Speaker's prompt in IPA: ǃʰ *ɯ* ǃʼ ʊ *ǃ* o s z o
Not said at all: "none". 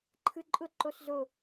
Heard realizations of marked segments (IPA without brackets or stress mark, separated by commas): ɯ, ǃ